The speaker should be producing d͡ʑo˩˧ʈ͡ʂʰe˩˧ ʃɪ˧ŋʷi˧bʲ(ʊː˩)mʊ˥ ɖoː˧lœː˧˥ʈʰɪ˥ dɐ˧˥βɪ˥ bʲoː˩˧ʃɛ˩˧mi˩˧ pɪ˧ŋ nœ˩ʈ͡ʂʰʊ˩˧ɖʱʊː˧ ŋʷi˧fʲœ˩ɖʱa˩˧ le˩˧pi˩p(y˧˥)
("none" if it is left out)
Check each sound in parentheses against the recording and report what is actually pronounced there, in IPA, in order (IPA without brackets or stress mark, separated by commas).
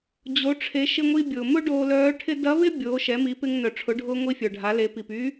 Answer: ʊː˩, y˧˥